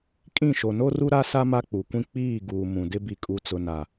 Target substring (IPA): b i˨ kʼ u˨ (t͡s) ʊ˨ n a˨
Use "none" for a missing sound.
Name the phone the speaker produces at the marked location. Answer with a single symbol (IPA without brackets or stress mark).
t͡s